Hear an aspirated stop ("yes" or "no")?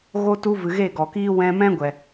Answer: no